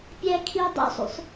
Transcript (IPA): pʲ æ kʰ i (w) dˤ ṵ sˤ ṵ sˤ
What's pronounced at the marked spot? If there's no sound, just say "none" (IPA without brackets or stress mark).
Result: w